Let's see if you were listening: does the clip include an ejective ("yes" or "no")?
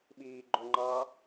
no